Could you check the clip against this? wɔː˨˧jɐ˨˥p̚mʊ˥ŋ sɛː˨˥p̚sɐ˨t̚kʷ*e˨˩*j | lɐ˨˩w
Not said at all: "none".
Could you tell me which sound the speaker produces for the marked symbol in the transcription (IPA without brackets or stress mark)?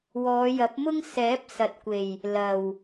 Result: e˨˩